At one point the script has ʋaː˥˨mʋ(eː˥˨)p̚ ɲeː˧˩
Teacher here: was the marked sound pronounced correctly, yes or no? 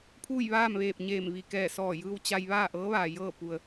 no